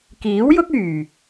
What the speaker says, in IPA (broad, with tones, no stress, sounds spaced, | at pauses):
k iː˨˥ w j ʊ˥ k̚ yː˨˩